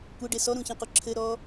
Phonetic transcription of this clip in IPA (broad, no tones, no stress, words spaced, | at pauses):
kʷɘɖe sɔɾũçĩqu ǁʰɘɾɔ